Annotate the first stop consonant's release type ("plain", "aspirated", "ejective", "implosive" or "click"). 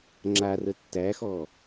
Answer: click